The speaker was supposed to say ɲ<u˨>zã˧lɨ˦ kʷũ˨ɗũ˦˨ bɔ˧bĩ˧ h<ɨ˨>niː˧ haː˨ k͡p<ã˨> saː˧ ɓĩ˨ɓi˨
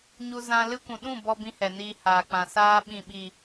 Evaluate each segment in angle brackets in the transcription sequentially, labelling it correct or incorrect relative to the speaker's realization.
incorrect: u˧, incorrect: ɛ˨, correct

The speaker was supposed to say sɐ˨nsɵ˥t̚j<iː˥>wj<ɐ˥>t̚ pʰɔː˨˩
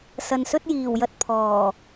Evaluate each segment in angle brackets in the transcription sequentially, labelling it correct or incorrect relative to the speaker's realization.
incorrect: iː˨˩, incorrect: ɐ˧

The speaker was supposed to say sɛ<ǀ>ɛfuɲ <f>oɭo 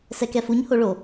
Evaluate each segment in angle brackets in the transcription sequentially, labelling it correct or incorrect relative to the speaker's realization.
incorrect: k, incorrect: h

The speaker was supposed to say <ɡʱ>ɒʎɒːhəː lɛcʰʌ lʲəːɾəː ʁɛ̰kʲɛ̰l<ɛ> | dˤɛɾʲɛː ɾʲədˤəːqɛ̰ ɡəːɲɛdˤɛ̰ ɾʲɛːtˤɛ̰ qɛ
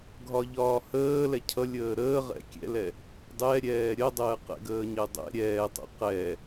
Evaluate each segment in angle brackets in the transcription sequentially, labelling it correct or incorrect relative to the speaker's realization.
correct, correct

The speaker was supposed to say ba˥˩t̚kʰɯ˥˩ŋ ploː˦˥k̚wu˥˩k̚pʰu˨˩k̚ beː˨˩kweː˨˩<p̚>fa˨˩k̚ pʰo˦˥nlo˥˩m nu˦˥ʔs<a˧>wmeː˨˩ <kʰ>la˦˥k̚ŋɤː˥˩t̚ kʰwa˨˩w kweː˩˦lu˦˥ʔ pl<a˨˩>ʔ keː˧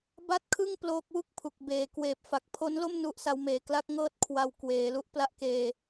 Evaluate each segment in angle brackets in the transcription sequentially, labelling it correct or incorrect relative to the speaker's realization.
correct, incorrect: a˦˥, incorrect: k, incorrect: a˥˩

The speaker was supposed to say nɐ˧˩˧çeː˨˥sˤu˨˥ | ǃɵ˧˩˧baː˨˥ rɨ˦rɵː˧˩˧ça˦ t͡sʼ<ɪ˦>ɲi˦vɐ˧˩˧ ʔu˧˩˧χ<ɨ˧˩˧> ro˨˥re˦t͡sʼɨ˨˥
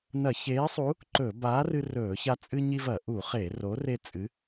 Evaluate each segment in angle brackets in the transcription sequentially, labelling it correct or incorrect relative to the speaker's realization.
incorrect: ɨ˦, incorrect: e˧˩˧

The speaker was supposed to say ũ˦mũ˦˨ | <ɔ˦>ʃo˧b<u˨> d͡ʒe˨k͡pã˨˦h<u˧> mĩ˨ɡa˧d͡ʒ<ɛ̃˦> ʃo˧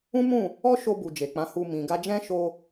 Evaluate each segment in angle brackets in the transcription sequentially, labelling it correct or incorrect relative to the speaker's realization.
correct, correct, correct, correct

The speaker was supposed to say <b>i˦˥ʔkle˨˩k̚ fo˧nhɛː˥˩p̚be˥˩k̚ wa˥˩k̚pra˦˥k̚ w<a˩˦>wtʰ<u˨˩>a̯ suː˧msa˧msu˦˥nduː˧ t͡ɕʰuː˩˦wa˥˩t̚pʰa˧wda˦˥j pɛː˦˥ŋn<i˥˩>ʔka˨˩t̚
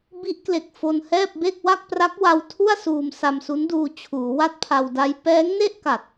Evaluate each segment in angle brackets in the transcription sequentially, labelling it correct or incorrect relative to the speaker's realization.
correct, incorrect: a˧, incorrect: u˥˩, incorrect: e˥˩

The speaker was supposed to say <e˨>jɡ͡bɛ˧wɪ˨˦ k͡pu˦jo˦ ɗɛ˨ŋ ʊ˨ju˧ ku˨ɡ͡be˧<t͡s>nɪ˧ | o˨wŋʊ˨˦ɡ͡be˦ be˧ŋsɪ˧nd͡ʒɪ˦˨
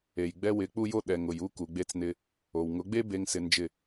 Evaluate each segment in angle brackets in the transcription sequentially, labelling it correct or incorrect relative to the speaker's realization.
correct, correct

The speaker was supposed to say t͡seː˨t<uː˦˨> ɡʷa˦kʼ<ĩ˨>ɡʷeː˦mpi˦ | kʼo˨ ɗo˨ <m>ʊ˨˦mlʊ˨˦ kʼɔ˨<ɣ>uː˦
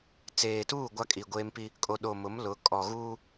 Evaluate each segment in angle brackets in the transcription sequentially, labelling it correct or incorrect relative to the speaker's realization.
correct, incorrect: i˨, correct, correct

